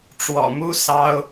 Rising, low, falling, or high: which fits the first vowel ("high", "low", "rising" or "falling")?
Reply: low